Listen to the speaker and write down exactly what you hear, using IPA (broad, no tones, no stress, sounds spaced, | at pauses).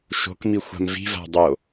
ʃ o̤ k m i xʷ a̤ m v i̤ v a̤ dˤ o